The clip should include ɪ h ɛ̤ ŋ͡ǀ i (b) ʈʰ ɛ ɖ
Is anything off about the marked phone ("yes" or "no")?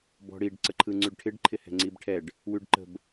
no